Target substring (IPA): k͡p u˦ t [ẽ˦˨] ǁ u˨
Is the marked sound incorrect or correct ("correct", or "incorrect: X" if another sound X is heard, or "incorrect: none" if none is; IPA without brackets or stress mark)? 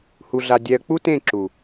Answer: correct